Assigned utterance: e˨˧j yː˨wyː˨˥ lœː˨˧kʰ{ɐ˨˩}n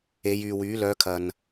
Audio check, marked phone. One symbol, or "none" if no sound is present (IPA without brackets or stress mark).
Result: ɐ˨